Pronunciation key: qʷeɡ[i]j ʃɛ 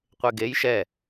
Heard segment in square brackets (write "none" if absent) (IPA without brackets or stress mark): e